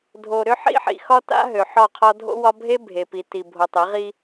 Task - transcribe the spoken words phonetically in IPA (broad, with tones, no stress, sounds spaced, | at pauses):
dʱ o˨ ɾ ʏ˦ ħ ḭ˦ ħ ḭ˨ x ɒ˦ t a̰˦ ɦ ø˨ ħ ɒ˦˨ qʰ ɒ˦ dʱ o̰˦ w ɒ˦ bʱ e˦ bʱ e˨ p i˨ t i˨ bʱ o˨ tˤ e˨˦ ʁ i˦